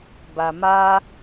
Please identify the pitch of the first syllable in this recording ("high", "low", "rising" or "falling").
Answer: low